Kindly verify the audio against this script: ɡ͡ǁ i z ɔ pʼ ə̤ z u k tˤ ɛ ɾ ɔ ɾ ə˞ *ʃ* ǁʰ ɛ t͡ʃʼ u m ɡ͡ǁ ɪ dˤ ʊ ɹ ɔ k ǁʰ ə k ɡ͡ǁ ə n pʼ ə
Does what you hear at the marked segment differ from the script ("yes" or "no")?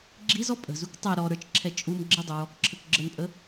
yes